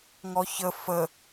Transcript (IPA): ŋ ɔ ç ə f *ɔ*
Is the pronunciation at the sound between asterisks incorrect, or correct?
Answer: incorrect